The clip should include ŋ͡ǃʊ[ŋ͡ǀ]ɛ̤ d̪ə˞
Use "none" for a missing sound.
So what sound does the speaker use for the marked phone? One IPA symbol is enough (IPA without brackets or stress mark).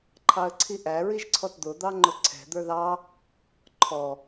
ǀʰ